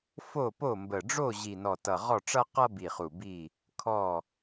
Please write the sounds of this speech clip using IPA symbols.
f o˦˨ p o˦˨ m b ə˨˩ ɖ͡ʐ o˦˨ ʑ i˨˩ n ɔ˨˩ t ʌ˨˩ ʁ ɔ˦˨ ʈ͡ʂ ʌ˦ q ʌ˦ b i˨˩ χ u˨˩ b i˦˨ | kʰ ɔ˦˨

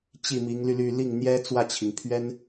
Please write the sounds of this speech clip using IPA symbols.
t͡ɕ i˥˩ m i˧˥ ŋ l y˧ l y˥˧ l i˥˩ ŋ n̪ j ɛ˥ t͡s w ä˥˩ t͡ɕʰ i˩ ŋ pʰ ɥ ɛ˥ n

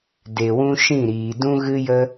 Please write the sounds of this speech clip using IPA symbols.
d e˨ w ũ˧ ʃ ĩ˦˨ ɾ iː˨ d ũ˦ ɣ ɨ˦ j ə˦

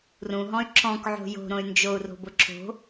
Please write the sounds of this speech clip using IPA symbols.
r ũ ɦ ɔ̃ y̯ ǁ ɔ̃ k ʕ o̤ j o̤ ɾ õ y̯ n d͡ʒ o u̯ r o̤ b ʊ ǁ o̤

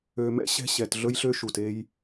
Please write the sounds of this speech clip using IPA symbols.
ø˨ m ɛ̰˦ ɕ ɛ̤˦ ɕ ɛ˨ t ɮ ɵ˦ j ɬ ø˦ ʃ u˨ t e˦ j

